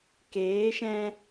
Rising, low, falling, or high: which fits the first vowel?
rising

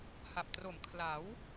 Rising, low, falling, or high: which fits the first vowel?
low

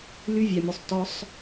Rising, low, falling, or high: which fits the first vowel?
high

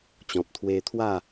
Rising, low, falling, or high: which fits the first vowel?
low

